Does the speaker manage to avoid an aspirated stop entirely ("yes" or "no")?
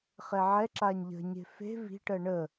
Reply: yes